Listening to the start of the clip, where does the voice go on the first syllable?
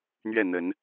falling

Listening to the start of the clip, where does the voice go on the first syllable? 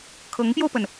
rising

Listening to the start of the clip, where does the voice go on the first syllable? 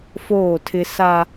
falling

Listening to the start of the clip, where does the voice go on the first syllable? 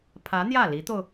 rising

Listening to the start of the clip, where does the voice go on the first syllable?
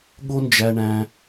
high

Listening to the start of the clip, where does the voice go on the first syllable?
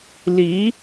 rising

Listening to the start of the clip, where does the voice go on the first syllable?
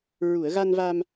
low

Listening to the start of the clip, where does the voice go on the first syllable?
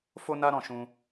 high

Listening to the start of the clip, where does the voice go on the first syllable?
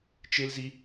high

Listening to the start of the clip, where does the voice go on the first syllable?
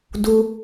high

